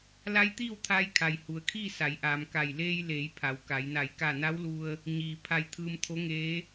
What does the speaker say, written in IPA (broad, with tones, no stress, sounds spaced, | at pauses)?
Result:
l a˧˥ j t̪ iː˥˨ w t̪ʰ aː˧ j kʰ a˩ j h u˩ ə̯ kʰ iː˥˨ s a˩˧ j ʔ aː˩ m k a˧˩ j l eː˧ j l eː˩˧ j pʰ a˩˧ w k a˩˧ j n a˧˩ j k a˧˩ n a˧˥ w l u˧ ə̯ | ɲ iː˩ pʰ a˧ j t̪ʰ ɯː˧ m t̪ʰ o˧˥ ŋ eː˧˥